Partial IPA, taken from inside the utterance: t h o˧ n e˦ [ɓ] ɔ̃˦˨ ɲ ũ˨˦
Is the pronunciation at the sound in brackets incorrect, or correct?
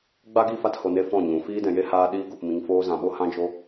incorrect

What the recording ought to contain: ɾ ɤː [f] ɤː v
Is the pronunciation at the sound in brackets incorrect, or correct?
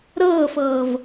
correct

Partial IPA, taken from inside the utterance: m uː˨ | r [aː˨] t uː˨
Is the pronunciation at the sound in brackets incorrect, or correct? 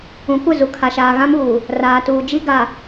correct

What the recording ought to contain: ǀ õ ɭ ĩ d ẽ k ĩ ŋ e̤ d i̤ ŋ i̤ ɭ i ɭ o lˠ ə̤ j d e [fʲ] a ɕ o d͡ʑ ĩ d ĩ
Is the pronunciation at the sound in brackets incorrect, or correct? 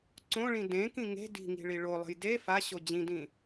incorrect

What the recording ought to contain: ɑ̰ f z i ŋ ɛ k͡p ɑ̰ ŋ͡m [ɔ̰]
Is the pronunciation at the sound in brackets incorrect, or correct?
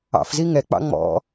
correct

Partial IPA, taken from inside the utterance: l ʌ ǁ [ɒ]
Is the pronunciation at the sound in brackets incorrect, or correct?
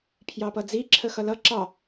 incorrect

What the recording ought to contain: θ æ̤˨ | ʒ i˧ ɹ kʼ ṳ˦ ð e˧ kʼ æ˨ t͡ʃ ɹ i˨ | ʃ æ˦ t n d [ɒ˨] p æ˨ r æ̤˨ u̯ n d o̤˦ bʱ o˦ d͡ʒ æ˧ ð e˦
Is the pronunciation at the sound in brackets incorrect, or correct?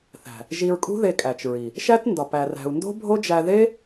correct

